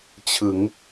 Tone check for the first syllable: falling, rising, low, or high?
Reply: rising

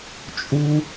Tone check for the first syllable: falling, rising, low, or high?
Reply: high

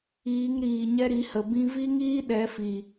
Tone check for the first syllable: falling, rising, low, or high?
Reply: rising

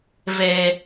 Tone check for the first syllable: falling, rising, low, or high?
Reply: low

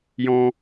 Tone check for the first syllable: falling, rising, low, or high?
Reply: high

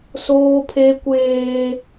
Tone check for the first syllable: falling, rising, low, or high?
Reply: high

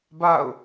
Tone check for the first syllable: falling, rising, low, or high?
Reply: falling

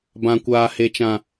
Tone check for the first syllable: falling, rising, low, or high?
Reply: low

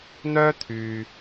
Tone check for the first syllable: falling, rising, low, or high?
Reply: high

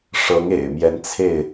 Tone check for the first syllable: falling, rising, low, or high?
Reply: rising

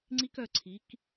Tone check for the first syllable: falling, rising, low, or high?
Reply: high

